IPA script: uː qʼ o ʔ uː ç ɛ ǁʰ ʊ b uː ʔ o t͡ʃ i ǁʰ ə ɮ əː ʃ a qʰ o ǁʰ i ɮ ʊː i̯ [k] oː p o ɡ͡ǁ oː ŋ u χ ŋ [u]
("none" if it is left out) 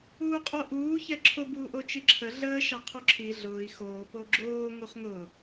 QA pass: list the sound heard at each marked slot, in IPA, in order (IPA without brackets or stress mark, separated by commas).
x, ʊ